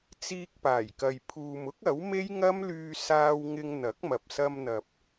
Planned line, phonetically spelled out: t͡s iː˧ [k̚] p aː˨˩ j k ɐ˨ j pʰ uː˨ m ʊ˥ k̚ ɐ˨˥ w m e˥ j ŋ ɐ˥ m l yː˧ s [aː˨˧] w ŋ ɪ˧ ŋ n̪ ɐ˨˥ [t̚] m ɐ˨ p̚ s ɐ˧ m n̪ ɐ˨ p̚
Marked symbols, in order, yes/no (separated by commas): yes, no, no